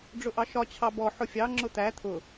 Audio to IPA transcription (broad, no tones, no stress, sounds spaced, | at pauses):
ɖ͡ʐ ʊ ʔ ɑ ʃ ɒ t͡ɕʰ ɑ b ɔ ħ ʊ fʲ ɑ ŋ͡ǁ ʊ t̪ æ t̪ʰ ʊ